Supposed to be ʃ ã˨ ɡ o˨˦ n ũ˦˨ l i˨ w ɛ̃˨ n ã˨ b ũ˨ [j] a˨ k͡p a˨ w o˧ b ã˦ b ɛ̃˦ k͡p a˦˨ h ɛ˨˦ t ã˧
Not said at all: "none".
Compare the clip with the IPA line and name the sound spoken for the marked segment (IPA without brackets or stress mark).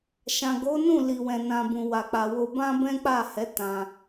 w